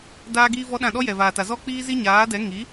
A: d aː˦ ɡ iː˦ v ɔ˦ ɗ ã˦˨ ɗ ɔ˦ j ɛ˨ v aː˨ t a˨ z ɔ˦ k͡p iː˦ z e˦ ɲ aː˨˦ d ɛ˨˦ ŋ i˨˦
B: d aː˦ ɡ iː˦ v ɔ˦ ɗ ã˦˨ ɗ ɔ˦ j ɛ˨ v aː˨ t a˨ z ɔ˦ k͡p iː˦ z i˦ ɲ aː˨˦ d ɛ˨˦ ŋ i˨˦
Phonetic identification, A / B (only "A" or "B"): B